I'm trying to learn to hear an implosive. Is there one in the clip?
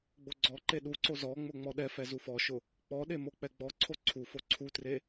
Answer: yes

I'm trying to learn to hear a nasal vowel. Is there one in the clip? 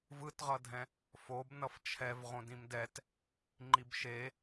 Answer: yes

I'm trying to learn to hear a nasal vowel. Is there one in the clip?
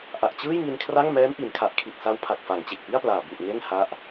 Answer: no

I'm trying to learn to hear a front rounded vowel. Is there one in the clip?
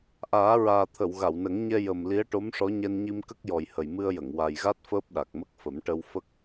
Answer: no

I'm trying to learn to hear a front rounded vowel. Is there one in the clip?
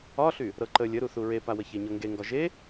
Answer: yes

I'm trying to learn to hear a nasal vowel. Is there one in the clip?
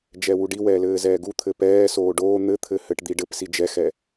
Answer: no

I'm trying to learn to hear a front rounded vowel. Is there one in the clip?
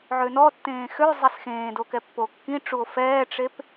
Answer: yes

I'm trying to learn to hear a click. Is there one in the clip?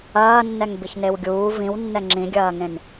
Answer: yes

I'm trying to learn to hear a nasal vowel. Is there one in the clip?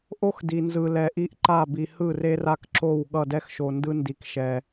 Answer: no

